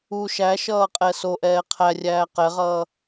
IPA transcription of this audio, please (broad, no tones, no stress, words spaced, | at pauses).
u ʃæ ʃʌːqʼɛsoʔɛː qʰærʲæː qɛʁʌː